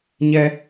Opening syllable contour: high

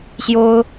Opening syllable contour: high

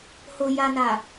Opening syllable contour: low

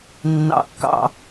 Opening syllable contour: low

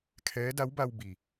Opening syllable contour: rising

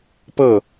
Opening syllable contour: falling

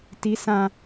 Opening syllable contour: rising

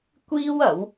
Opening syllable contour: high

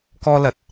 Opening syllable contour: high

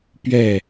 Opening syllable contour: falling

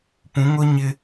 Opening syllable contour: rising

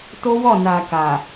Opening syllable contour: high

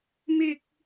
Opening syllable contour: high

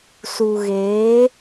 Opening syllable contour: low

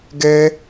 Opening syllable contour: high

